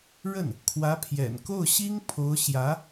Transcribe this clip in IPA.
ɻ ə˥˩ n | kʰ w ä˧˥ pʰ j ɛ̰˨˩ n k o˥˩ ʊ̯ ɕ i˥ ŋ pʰ o˧˥ ʊ̯ ɕ j ä˧˥

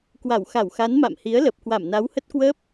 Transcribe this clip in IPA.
k w a˧˩ w x a˧˩ w x a˨˦ n m a̰˧˨ m h i˨˦ ə̯ l ə˨˩ p̚ k w a˧˩ m n a˨˦ w h ə˦˥ t̚ k w əː˦˥ p̚

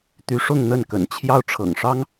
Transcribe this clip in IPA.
t̪ y˧˥ ʂ ʊ˥˧ ŋ n̪ ə˥˩ n k ə̰˨˩ n t͡ɕʰ j ɑ˥˩ ʊ̯ ʈ͡ʂʰ ɤ̰˨˩ ŋ ʂ ɑ˥ ŋ

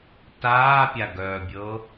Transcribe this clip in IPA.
t aː pʲ a ɡ œː bʲ ɤ

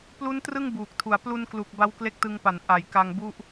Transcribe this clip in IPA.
p l u˦˥ n t r ɯ˥˩ ŋ b uː˨˩ k̚ tʰ u˨˩ a̯ p l u˧ n k l u˨˩ k̚ b a˦˥ w k l e˦˥ k̚ t ɯ˧ ŋ p a˩˦ n ʔ a˩˦ j k a˧ ŋ b u˥˩ ʔ

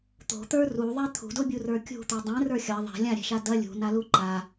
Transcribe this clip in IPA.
t̪ o̤ t̪ ə˞ r u ðˤ ɛ t̪ʰ ṳ d o bʲ u r ə˞ kʲ ṳ t̪ u dˤ ɛ̃ r ə˞ xʲ ɐ ðˤ ɛ̤ lʲ ã ɾʲ ɛ̤ ʃ a d ɐ lʲ ṳ n a l u ǃ a

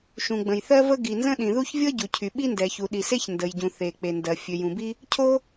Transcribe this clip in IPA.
ʃ ũ˩ ɡ͡b ə̃˩ j θ ɜ˥ v ə˥ ɡ i˩ n z ə̃˥ ɗ ĩ˩ ð u˥ ç vʲ ɤ˥ ɟ u˩ cʰ y˩ ɓ i˥ n d ɛ˩ ç u˩ ɗ i˩ s e˥ ç n d ə˩ j ɟ ũ˩ θ e˩ k͡p e˩ n d ɜ˩ fʲ ø˩ j ũ˩ b i˥ | cʰ o˥

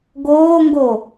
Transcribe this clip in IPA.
ɡ oː ŋ ɡ o

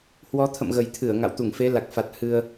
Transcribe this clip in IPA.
h w ɔ˨˦ t̪ʰ ə̰˧˨ m ɣ ə˨˩ j t̪ʰ ɨ˧˩ ə̯ ŋ a̰˧˨ w t̪ u˧˩ ŋ f e˨˦ l a˨˩ k̚ f a˨˩ t̚ h ɨ˧ ə̯

